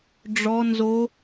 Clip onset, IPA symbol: ɖ͡ʐ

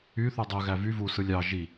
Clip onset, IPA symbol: y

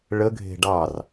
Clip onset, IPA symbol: ɭ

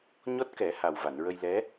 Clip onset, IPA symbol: ɲ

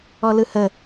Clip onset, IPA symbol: ɔ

